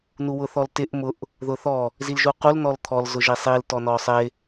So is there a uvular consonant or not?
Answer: yes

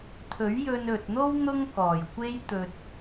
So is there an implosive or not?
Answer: no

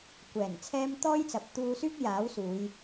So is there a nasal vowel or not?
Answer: no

